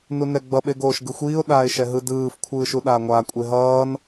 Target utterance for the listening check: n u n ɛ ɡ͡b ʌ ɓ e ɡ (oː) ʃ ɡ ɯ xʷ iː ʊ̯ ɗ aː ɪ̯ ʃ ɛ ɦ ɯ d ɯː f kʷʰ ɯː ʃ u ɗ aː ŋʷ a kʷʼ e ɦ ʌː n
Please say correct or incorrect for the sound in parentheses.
correct